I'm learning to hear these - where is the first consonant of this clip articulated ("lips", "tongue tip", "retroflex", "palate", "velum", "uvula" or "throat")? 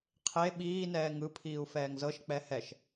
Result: uvula